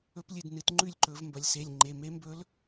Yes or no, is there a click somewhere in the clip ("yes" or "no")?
yes